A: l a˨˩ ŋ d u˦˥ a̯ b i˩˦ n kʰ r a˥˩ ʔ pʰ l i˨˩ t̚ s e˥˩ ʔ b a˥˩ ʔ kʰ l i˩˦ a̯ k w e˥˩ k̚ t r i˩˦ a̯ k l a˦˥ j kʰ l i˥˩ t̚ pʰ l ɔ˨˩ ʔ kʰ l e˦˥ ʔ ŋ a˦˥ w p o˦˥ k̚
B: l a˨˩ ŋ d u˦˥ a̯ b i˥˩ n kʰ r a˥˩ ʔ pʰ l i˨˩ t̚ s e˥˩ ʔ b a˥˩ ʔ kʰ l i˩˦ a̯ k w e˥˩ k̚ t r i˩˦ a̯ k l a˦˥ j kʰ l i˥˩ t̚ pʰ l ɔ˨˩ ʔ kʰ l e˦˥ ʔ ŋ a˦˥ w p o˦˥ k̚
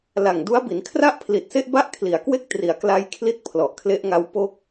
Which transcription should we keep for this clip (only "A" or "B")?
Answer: A